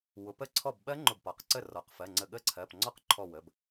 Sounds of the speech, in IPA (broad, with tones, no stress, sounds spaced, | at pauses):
w ʊ˩˧ p ə˥˩ ǀʰ ɔ˥˩ b ɓ ɜ˦˥ ŋ͡ǃ ʊ˧˩ b p ɒ˩˧ q ǀ ə˥˩ r ɔ˩˧˩ q f ɜ˩˧˩ ŋ͡ǀ ə˧˩ ɠ ə˦˥ ǀʰ ɜ˩˧˩ p ŋ͡ǀ ɔ˦˥ q ǃʰ ɔ˧˩ w ə˩˧˩ b